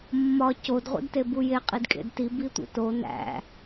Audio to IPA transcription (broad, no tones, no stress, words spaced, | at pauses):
mːɒ cod ʁʷḭdtebuje qʼidkʼḛdti bitʷḭto næ̰